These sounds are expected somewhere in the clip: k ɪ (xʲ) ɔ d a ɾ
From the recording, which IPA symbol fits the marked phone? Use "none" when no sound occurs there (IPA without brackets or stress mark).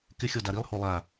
xʲ